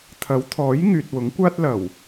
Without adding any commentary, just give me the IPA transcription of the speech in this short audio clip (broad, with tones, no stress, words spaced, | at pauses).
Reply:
t̪ʰɐ˨˥wt̪ʰɔː˨˥j ŋyː˨t̚wʊ˨˥ŋkʷaː˥t̚ lɐ˨˩w